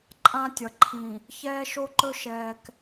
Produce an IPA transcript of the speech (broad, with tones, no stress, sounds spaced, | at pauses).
ǃʼ ã˦ tʲ ʌ˨ ǃʰ ĩ˨ | ç ɛː˦ ʃ o˦ ǃ ɵ˦ ʃ ɛː˨ k